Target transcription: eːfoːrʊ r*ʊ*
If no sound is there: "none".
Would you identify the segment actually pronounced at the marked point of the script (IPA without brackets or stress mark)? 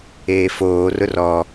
ɔ